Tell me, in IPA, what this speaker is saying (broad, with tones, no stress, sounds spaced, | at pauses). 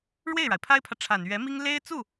ɻ w e˥˩ ɪ̯ ɻ a˩ ɪ̯ pʰ a˥ ɪ̯ pʰ ä˨ ʈ͡ʂʰ a˨˩ n ɥ ɛ˧˥ m i˥ ŋ l e˥ ɪ̯ t͡s u˥˩